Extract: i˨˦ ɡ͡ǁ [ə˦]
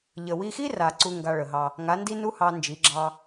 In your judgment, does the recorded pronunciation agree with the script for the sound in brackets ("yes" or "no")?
no